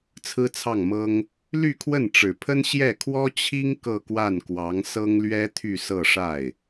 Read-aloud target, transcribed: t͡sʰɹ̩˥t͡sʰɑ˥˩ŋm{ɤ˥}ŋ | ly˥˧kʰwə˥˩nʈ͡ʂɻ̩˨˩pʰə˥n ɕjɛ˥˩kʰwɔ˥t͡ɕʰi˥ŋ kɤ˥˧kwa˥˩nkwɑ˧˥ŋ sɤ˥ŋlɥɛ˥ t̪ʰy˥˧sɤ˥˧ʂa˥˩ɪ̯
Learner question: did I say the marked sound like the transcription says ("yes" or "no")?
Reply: yes